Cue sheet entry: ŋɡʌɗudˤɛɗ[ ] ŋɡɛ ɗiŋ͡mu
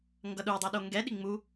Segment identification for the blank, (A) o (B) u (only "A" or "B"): A